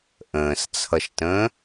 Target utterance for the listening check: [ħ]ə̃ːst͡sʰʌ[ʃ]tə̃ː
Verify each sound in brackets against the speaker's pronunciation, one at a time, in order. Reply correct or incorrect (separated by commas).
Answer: incorrect, correct